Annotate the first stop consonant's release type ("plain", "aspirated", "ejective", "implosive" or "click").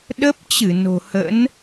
implosive